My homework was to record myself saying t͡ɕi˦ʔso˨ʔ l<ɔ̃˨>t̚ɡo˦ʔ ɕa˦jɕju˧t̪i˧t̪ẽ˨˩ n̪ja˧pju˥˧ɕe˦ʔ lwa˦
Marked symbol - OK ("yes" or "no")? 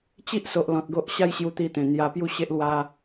yes